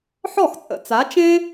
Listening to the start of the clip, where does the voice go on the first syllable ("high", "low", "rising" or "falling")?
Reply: falling